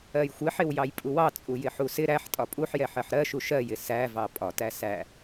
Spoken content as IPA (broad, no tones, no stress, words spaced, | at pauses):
ɜjxʷɪħɪw jɑjpʼuwɑ t͡sʼujɪħusɪ ɾæħtʼɒ pʼuħjɛħɜħ ɾɜʃu ʃɜjɪ sævɑ pʼɒtæ sæ